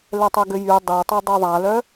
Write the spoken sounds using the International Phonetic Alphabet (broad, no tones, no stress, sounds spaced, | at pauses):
l ɛ tˤ ɛ ɡ ø j y dˤ e tˤ u dˤ u ðˤ a l œ